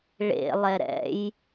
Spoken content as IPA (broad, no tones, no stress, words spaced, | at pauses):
ɭḛ lˠɛɾɛ̰j